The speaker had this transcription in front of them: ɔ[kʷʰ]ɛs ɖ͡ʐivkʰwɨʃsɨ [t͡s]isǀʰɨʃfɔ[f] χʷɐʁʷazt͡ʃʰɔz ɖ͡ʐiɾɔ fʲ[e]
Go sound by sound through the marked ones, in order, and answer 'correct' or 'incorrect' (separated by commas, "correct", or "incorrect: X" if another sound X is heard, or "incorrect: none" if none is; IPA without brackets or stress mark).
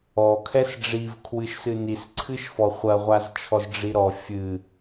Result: incorrect: kʰ, incorrect: n, incorrect: none, incorrect: ɨ